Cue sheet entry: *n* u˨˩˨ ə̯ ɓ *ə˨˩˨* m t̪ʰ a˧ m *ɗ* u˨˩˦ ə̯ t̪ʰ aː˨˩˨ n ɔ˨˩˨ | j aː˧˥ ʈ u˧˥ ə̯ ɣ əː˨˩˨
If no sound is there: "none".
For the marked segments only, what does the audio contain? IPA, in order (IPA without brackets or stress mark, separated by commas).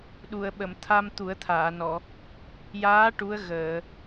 ɗ, ə˨˩˨, t̪